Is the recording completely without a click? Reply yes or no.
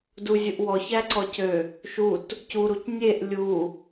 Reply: no